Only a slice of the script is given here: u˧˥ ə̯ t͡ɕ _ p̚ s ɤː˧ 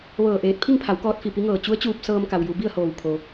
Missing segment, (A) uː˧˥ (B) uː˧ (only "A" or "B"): B